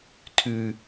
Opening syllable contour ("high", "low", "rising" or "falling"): low